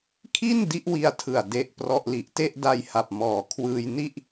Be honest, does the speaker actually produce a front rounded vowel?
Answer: no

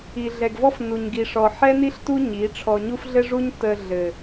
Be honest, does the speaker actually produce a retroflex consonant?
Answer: yes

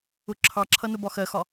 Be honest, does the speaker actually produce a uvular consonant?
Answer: no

